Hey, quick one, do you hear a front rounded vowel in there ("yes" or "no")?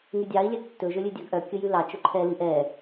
yes